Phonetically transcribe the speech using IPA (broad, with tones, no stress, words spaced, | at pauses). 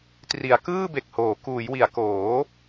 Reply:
tri˩˦a̯kɯː˥˩be˨˩k̚ hoː˩˦ kuː˩˦jwi˩˦a̯ koː˩˦